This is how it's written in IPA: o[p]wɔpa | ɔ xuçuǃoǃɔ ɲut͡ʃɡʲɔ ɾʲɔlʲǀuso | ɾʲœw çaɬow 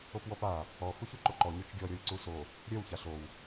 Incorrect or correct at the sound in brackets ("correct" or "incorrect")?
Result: correct